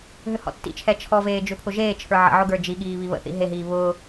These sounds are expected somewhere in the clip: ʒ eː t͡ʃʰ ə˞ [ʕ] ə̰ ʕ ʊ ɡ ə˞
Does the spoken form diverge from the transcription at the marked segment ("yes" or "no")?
no